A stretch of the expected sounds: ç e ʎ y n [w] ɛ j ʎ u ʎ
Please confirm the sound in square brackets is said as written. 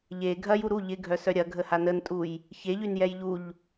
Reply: no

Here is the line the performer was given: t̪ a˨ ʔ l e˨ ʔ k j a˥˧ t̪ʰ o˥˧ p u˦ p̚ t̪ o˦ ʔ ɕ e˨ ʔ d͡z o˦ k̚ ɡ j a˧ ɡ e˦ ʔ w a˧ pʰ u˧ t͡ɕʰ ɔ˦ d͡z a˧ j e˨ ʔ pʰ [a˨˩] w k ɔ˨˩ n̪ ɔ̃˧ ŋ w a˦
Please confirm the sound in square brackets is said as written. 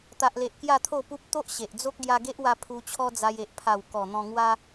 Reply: yes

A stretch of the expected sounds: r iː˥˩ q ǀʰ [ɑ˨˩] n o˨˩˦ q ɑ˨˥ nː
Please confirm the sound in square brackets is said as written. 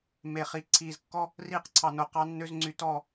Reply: yes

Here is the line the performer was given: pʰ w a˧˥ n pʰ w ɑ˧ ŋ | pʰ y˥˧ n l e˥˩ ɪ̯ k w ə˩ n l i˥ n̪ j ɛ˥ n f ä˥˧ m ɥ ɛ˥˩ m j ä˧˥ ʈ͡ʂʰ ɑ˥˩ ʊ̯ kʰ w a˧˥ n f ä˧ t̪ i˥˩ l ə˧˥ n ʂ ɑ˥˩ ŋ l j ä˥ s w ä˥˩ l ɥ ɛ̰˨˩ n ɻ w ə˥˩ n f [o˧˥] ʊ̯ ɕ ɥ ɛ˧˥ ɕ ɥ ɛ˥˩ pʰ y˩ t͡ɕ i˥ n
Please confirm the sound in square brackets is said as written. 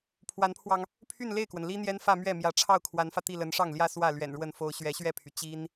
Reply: no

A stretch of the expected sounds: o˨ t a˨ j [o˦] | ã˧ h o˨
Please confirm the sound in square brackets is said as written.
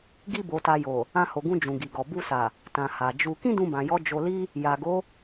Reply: no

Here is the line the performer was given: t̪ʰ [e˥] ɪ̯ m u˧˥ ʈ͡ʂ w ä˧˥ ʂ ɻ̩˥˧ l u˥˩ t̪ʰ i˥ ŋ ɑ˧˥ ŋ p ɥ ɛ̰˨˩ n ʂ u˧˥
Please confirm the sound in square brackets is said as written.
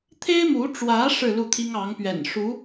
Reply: yes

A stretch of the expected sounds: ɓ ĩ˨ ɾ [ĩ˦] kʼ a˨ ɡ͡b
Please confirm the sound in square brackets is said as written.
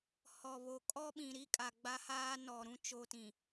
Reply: no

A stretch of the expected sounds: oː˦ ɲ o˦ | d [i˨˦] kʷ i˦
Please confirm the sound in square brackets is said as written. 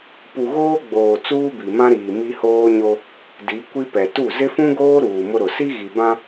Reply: yes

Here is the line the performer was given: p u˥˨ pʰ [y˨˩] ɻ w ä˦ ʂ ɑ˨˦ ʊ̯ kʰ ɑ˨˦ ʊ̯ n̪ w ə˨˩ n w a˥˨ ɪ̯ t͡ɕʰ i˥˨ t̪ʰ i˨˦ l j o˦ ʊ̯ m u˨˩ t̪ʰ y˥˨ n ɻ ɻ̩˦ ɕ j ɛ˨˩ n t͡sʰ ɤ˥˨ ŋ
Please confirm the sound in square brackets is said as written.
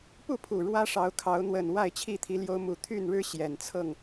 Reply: no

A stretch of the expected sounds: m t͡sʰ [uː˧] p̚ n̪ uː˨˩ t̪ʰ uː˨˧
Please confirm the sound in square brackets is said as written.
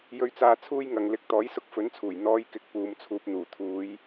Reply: yes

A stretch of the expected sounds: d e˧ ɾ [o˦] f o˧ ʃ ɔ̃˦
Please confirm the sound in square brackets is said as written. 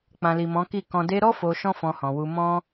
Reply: no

